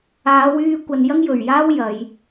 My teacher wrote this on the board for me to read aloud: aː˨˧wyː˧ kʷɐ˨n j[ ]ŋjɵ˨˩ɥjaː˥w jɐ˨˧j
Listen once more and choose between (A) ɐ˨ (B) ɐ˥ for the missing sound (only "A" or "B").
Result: B